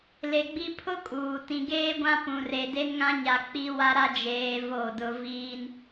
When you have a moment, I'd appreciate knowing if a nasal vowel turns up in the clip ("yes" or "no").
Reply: yes